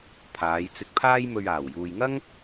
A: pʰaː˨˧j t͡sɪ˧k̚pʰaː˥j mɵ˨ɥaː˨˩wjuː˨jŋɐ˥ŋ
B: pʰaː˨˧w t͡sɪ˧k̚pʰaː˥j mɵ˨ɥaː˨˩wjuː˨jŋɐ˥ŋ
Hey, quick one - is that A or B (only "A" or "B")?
A